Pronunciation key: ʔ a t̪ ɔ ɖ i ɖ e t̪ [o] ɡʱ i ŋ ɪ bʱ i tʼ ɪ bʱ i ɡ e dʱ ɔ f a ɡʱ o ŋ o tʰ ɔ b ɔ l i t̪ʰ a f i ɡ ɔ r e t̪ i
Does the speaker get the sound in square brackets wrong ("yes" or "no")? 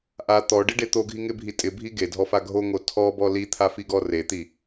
no